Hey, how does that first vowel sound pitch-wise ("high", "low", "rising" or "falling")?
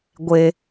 high